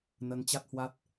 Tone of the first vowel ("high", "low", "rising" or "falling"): rising